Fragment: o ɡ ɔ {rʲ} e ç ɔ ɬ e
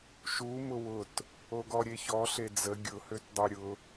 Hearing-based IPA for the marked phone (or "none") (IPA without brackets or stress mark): ɾʲ